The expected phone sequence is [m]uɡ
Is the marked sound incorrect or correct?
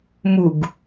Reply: correct